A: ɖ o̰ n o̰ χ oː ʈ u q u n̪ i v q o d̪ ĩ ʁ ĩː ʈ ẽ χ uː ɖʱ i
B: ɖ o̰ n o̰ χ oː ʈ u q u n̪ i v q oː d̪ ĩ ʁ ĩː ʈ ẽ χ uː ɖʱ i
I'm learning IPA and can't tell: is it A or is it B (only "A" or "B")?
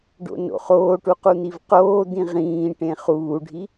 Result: B